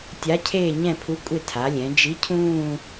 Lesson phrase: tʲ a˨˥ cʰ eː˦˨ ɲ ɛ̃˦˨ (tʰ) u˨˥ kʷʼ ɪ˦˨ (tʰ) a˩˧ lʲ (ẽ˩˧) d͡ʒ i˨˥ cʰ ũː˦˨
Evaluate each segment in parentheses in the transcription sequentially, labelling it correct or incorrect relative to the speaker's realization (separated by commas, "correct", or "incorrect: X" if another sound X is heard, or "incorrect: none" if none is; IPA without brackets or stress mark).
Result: incorrect: pʰ, correct, incorrect: ɛ̃˩˧